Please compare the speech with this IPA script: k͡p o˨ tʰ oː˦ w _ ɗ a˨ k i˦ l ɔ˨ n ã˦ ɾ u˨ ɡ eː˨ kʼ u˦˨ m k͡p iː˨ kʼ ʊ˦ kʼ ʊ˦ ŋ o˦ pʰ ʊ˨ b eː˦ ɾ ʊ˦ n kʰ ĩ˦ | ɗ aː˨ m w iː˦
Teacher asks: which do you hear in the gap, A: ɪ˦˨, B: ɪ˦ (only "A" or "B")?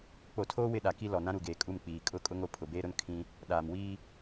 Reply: A